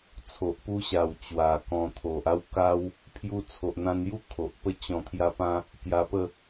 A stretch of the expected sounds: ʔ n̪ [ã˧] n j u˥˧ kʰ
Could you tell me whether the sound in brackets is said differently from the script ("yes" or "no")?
no